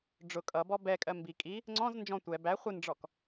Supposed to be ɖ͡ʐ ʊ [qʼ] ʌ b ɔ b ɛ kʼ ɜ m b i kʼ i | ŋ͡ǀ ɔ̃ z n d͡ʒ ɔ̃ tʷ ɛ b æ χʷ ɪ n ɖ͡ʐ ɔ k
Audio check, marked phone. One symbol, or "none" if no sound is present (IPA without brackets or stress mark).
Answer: kʼ